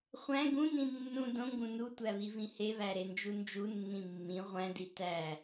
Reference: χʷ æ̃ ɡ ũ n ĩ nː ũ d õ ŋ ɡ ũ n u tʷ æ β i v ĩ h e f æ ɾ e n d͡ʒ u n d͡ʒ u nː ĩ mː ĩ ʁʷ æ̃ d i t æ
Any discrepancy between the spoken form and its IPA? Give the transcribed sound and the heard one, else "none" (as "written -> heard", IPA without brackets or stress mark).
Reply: f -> β